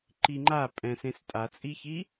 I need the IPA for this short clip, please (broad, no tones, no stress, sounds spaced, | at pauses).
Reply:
ǃ i ŋ͡ǃ a pʼ ɛ̃ s ẽ s tʼ a t͡sʼ i ç i